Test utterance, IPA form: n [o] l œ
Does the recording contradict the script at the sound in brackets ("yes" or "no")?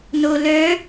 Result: no